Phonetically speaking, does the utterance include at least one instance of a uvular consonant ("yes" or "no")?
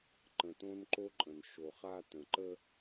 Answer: yes